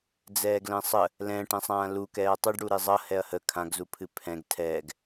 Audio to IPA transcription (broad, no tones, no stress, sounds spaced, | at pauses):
d͡z ɛː ɡ l ɛ̃ sˤ ə | l ɛ̃ː ʈ ɛ̃ sˤ ãː l u k ɛː ɐ̯ tˤ ɨ ɖ ɽ u ɾ e zˤ ʌ h ɛ ɐ̯ h ə kʰ ã ɡ z u pʰ ɨ pʰ ɛ̃ ɡ tʰ ɛː ɡ